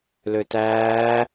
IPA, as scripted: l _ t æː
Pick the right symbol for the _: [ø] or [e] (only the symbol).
ø